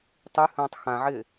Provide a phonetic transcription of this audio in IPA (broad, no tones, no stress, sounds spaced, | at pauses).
tˤ y h ə̃ː tˤ x ã ʕ ɪː